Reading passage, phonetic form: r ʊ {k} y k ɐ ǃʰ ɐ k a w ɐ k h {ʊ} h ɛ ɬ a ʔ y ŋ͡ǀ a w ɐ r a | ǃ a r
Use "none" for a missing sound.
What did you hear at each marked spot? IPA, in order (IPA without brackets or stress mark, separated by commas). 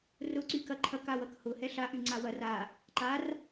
ǀ, ʊ